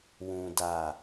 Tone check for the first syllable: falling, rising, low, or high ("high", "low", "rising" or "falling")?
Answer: low